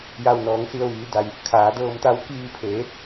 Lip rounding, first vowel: unrounded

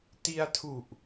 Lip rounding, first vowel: unrounded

